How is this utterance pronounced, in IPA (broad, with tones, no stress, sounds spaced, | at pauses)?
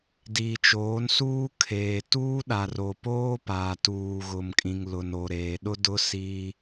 d iː˨ t͡ʃ oː˨˦ n s uː˦ kʰ eː˨ t uː˦ ɗ a˨ r o˨ p oː˦ p aː˨ t uː˨ ɣ ʊ˨ m kʼ ĩ˨ ŋ l ʊ˨ n o˨ ɾ eː˨ ɗ ʊ˦ d ʊ˦ s i˦